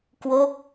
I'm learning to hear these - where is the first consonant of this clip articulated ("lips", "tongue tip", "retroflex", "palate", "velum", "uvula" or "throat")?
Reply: velum